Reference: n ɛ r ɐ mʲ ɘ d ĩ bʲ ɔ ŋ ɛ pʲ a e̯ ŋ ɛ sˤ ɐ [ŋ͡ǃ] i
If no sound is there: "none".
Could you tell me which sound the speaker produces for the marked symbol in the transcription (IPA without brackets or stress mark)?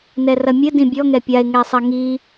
ŋ